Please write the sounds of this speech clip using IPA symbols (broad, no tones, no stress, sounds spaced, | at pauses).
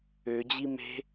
ø d͡ʑ i m e̤